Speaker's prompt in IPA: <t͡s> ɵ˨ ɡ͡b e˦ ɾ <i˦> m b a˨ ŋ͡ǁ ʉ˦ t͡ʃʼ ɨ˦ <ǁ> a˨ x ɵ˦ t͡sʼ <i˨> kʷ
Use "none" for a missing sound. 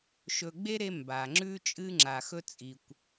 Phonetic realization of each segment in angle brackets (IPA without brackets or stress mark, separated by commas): ʃ, e˦, ŋ͡ǁ, i˨